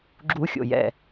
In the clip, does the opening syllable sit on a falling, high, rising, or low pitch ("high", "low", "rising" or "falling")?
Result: high